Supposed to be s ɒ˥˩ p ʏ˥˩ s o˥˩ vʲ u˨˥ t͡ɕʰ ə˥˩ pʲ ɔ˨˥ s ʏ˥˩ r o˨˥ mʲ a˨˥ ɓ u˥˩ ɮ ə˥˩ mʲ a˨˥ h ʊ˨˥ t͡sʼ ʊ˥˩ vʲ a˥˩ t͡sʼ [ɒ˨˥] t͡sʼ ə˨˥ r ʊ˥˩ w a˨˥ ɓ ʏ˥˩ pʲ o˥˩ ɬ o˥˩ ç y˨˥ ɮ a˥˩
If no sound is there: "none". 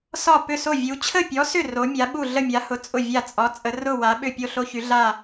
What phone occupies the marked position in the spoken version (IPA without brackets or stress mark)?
ɒ˨˥